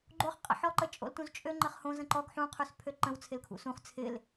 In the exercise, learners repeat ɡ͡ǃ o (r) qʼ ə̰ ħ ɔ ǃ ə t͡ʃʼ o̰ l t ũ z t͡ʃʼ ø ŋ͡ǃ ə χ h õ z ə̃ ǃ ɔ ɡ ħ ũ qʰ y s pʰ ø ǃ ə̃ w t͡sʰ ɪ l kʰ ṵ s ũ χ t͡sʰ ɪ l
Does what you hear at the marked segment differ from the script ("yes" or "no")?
yes